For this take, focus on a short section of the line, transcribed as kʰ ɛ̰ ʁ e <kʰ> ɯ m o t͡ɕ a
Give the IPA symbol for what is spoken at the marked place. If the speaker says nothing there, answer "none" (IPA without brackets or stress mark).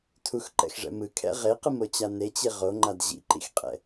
q